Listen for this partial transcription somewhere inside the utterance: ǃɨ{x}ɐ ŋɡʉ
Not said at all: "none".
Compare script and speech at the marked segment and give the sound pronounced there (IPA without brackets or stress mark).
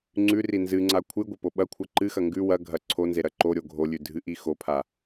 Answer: x